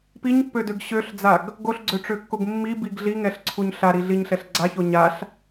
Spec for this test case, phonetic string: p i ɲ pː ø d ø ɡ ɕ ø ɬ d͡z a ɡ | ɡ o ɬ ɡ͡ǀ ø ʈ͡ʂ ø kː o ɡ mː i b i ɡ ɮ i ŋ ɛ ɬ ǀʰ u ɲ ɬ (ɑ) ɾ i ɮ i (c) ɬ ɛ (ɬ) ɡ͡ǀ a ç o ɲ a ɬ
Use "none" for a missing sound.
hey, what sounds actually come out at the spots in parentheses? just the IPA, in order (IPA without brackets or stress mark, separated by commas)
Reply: a, ɲ, ɬ